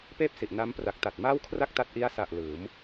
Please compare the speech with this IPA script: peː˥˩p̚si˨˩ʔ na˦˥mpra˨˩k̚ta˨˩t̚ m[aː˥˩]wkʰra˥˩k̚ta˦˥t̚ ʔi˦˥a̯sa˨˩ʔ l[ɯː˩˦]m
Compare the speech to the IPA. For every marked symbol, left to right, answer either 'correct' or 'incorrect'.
correct, correct

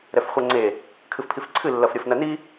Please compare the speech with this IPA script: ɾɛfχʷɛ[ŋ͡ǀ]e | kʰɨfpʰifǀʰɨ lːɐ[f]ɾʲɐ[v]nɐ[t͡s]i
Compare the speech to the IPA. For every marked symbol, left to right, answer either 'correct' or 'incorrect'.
correct, correct, incorrect: f, incorrect: n

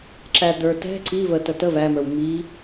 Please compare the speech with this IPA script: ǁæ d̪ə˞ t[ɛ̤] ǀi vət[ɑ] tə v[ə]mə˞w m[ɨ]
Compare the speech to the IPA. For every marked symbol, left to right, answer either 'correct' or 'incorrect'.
correct, incorrect: ə, incorrect: æ, incorrect: i

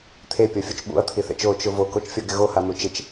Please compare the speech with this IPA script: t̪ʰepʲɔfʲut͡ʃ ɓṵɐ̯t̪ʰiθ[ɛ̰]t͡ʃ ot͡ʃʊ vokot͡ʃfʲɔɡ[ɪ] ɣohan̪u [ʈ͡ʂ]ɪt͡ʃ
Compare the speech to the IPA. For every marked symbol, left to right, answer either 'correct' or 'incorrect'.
correct, correct, incorrect: t͡ʃ

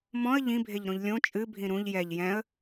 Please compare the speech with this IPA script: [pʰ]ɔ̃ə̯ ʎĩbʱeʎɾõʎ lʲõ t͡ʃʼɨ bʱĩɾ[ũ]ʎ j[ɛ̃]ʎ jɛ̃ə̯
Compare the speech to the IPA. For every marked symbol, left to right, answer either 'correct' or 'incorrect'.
incorrect: m, correct, incorrect: ɛ

